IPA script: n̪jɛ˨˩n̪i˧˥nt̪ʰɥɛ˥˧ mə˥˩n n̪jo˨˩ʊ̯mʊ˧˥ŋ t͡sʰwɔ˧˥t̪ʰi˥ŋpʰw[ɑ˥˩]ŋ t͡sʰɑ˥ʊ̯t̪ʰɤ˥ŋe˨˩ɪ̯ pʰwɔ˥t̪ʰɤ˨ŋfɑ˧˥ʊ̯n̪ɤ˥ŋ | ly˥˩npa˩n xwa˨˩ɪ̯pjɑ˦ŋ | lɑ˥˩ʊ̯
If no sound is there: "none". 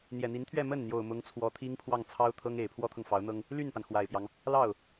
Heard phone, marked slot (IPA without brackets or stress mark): ɑ˥˩